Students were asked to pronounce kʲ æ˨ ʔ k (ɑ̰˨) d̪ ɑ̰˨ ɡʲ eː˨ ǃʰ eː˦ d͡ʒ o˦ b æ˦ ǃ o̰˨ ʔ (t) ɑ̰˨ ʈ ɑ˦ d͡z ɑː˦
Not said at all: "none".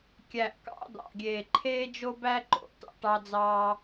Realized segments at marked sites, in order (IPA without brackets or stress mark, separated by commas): ɑ̰˨˦, t